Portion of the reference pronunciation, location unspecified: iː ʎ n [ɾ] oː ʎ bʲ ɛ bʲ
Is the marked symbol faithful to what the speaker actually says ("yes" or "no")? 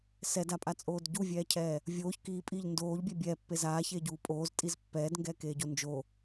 no